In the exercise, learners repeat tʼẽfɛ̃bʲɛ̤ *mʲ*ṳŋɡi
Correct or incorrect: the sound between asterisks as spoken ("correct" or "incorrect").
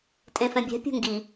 incorrect